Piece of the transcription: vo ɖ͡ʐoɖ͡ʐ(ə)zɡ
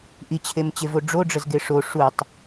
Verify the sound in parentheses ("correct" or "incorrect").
correct